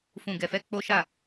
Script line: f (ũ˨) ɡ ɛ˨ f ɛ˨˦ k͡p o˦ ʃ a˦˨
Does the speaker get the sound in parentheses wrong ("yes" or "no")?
no